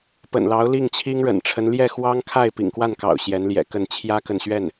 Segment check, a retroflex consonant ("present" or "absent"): present